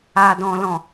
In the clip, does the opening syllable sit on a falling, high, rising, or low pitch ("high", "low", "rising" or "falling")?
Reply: low